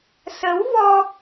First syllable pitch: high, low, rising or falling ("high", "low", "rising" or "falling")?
rising